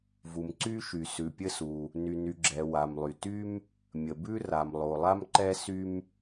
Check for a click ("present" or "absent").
present